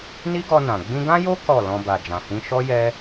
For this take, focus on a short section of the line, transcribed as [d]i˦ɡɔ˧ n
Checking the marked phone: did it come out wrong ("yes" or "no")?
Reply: yes